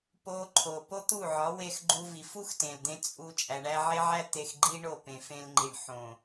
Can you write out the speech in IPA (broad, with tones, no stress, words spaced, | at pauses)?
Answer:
po˧ǃʰo˨ po˦t̪u˦˨ʕɒ˨˦ we˧xɡ͡ǃu˧ vi˨fu˦xtẽ˨ld̪ẽ˧ t͡sʼu˧ t͡ʃʼæ˨ɳæ˧ʕe˦ʕæ˦ t̪e˧xɡ͡ǃi˦ ɳo˦˨ pẽ˨ fẽ˧lŋ͡ǃi˨ɳ ħõ˨